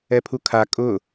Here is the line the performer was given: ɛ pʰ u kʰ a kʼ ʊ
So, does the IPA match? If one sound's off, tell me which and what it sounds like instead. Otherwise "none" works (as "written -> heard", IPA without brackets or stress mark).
none